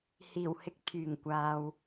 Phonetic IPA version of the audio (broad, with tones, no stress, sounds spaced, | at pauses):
h iː˨˩ w h ɪ˧ k̚ t̪ʰ yː˨˩ ŋ kʷ aː˨ w